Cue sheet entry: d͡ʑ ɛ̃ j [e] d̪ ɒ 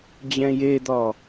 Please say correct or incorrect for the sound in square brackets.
correct